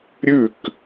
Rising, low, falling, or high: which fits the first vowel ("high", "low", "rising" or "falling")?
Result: falling